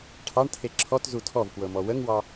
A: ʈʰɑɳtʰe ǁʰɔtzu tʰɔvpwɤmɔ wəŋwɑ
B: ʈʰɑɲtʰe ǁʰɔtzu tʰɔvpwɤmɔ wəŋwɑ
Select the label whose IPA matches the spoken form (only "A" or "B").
A